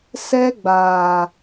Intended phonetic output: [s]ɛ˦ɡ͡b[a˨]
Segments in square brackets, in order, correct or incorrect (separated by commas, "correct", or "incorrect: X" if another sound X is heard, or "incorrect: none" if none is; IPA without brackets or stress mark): correct, incorrect: aː˨